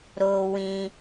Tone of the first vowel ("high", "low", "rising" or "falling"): high